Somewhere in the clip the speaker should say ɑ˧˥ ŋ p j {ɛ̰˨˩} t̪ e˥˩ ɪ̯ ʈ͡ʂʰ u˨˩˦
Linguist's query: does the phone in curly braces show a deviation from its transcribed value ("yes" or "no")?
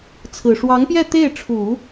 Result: yes